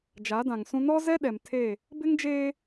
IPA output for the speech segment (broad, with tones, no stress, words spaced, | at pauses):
d͡ʒa˨˦dã˨ŋsũ˦ nɔ˦zɛ˦ ɗɛ˨m tʰe˦˨ | bɪ˦ŋd͡ʒeː˦